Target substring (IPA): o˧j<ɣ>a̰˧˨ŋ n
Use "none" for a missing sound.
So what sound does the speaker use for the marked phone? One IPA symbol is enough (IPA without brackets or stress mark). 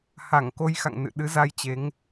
x